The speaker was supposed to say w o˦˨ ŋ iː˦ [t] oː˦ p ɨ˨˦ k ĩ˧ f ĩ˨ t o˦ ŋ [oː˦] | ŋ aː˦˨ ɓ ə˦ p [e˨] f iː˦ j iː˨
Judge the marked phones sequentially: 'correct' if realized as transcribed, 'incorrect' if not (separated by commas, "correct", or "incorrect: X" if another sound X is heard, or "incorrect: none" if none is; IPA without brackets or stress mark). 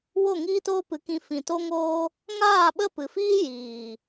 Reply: correct, correct, incorrect: ɨ˨